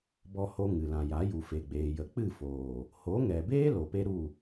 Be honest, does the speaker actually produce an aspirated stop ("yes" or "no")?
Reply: no